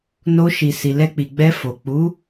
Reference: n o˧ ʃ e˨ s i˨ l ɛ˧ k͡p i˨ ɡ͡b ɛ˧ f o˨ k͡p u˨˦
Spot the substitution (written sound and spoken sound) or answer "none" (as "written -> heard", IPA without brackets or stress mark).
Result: e˨ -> i˨